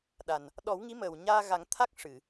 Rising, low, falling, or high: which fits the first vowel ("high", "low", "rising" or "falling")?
low